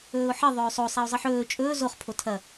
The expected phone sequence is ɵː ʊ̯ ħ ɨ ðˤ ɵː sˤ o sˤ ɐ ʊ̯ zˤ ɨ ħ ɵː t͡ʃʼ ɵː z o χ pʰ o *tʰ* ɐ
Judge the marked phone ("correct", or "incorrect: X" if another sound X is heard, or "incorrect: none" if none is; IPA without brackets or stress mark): correct